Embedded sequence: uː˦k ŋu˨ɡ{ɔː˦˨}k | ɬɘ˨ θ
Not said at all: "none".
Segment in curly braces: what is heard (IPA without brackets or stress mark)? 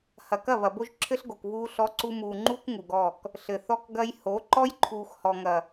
ɔː˦˨